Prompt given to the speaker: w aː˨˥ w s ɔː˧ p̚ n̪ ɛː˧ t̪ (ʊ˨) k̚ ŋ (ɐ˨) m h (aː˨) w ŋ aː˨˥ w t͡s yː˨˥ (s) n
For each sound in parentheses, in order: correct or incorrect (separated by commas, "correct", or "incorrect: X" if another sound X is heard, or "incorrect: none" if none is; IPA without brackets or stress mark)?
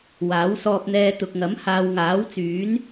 correct, incorrect: ɐ˨˥, correct, incorrect: none